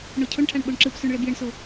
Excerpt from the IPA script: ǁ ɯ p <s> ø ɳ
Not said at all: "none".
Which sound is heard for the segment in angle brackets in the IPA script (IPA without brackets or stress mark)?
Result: s